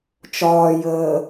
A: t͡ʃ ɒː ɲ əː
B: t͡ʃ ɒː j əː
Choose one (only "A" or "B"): B